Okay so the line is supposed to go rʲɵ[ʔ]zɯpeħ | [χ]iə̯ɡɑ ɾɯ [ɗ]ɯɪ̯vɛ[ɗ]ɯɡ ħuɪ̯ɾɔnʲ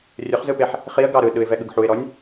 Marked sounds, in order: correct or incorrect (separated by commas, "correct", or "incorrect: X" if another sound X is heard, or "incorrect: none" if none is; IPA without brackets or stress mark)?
incorrect: χ, correct, correct, incorrect: ɠ